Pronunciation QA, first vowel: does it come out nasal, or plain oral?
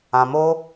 nasal